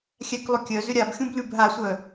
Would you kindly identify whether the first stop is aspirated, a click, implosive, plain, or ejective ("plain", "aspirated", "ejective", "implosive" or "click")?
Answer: plain